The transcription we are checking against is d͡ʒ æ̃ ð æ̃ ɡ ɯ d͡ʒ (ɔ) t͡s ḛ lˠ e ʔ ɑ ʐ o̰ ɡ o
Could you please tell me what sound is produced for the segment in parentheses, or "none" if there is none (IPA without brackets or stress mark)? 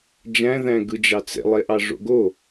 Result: ɑ